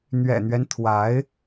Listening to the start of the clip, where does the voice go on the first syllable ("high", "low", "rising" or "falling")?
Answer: low